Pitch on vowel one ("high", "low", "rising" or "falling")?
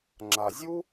low